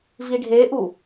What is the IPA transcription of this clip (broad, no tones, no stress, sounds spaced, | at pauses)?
v i ɖʱ e ʔ u